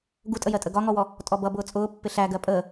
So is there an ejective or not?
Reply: yes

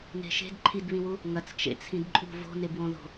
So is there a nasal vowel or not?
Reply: yes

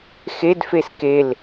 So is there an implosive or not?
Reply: no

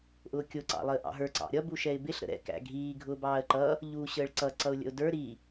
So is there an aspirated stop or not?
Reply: no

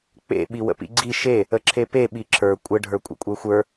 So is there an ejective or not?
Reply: yes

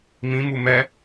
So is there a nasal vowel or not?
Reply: yes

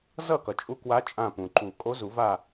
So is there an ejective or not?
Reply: yes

